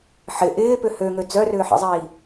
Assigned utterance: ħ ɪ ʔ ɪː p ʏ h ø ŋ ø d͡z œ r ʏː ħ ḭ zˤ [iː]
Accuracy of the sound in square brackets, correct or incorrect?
correct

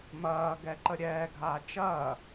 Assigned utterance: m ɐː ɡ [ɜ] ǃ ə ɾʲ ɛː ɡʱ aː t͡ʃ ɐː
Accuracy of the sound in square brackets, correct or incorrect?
incorrect: ɛ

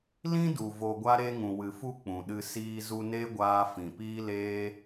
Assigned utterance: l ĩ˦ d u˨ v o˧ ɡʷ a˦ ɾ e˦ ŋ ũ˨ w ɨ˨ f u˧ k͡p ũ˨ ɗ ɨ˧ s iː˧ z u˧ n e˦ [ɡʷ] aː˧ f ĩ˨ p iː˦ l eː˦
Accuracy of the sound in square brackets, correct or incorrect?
correct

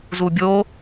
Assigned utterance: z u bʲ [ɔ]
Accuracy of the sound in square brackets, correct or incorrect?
incorrect: o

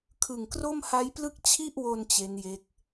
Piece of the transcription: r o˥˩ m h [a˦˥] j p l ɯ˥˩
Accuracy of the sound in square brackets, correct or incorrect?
correct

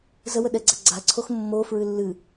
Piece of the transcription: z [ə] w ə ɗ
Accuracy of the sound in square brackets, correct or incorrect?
correct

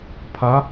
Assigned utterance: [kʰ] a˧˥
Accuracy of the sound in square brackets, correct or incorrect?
incorrect: pʰ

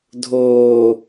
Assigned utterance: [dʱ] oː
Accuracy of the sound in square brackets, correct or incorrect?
correct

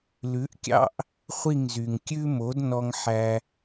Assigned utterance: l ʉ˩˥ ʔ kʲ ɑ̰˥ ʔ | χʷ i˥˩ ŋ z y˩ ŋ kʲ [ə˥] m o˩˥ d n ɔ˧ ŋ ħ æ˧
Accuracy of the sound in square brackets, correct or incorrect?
incorrect: ʉ˥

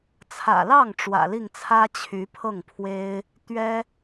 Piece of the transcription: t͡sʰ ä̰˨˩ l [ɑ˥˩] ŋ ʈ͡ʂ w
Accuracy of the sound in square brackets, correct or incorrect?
correct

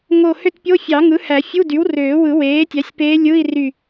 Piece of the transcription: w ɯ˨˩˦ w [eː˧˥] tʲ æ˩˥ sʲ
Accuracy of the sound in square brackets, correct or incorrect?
incorrect: eː˩˥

